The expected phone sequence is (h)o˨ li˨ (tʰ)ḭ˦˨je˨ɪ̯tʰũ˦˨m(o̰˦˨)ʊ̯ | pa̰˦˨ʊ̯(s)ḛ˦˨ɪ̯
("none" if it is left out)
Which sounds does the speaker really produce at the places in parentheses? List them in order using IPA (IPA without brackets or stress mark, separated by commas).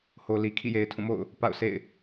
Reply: h, kʰ, o̰˦˨, s